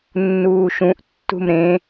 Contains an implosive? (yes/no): no